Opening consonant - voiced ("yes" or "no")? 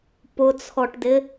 no